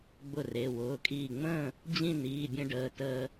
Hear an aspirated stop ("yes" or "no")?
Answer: no